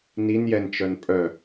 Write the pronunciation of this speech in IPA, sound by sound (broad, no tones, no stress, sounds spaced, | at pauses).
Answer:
n i n j ɛ n t͡ʃ œ n pʼ œ